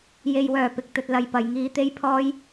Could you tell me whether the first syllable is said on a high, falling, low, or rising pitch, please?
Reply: low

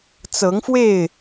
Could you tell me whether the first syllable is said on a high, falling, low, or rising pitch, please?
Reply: rising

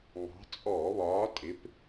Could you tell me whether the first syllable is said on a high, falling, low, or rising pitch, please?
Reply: rising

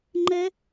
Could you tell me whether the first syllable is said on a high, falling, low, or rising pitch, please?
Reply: high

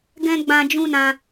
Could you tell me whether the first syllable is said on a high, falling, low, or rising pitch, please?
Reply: high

